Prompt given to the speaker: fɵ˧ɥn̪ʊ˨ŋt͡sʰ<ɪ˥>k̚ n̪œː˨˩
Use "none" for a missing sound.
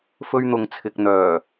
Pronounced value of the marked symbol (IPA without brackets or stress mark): ɪ˨